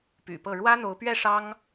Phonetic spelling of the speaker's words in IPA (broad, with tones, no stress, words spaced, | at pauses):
py̰˨˩pɤ˥˩ ɻwä˥n̪o˧˥ʊ̯pɥɛ˥˩ ʂɑ˥ŋ